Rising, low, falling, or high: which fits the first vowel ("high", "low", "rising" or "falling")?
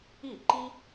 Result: falling